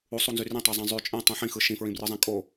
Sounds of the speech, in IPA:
usˤunzy rĩtˤezˤĩ zˤy t͡ʃʼẽtˤĩ ħĩxɯ ʃĩfɹĩbrɯzˤẽ kʼo

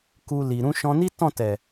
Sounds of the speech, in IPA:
ku˧li˨ ɾũ˧ʃɔ̃˧ ni˦tɔ̃˦˨tɛ˨

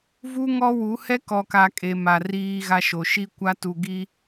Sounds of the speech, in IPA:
vu˦ŋɔ˦wu˨˦ hɛ˦kɔ˨ka˨ kʼe˨ma˨ riː˦ɣa˦ʃo˨ ʃi˦kʷa˦tu˨ ɡi˦

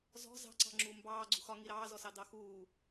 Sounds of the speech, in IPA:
zɔ̤ zɑ̤ǀɑ̤ŋ͡ǁuː mbɑː ɡ͡ǀṳxɒŋi ɾɑːzɔsɑ dɑxuː

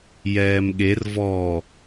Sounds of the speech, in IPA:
jɛːmɠer vɔ

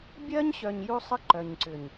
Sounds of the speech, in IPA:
bʲɜ˦ɲɕœ˨ɲ ju˦sˤə˦ ǃœ˨ɲǀʏ˨ɲ

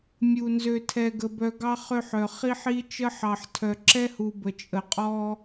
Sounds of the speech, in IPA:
mʲu˨ nzø˨tʰɛ˨ɡə˨bœ˨ ɡɑ˦χø˦˨ħœ˨ χi˦ħi˦ t͡ʃə˦ħɑ˨ħtʰœ˨ ǁɛ˦hu˨ bə˨t͡ʃʼə˨qʼɔ˦

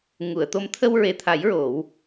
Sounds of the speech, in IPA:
ŋu˨˩˨ə̯t̪o˧˥m t̪ʰə˧wɹe˨˩t̪ʰa˨˩˦j ɹo˨˩˦w

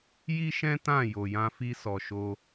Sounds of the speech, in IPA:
ji˦ʃɛ̃˦ tã˦˨ jo˨jã˧fi˧sɔ˨ ʃo˧

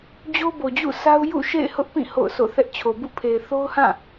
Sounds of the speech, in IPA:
d͡ʑo˦bo˨d͡ʑṵ˦˨sa˦ʊ̯ jṵ˦˨ʃḛ˦˨ɪ̯hʊ˦ʔ pĩ˦˨ ho̰˦˨ʊ̯so̰˦˨θɛ˦ʔ t͡ɕʰo˨bṵ˦˨pʰe˨ɪ̯ θo˦ʊ̯hã˦˨

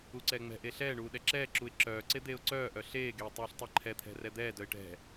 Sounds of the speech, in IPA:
uǀɛːŋ͡mɛ̤ʔe ɬɛːɳuː ɗɛǁɛːǁuɪ̯ ǁœːǀe d̪eːʊ̯ǀœːʔœ ɬeːɡeː tˤuːɬtˤɛǃʰɛt̪ʰɛ̤ rɛd̪ɛːdœɪ̯ ʈɛ̤

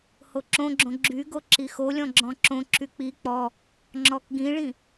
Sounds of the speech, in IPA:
hoǁõɡ͡ǁõ ɡ͡ǁyɡo ǁixolʲɔ̃ ɡ͡ǁɔ̃ǁõǁy k͡pi k͡pɔ | ŋ͡ǁɔkɡĩɭĩ

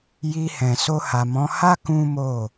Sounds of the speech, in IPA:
ji˧hɛ̃˨so˧ ha˨mɔ̃˨˦ha˦ kũ˦mo˦˨

